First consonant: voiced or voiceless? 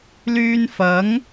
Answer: voiced